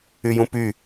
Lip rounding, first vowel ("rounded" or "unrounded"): rounded